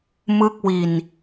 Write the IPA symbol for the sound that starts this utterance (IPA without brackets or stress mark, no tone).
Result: m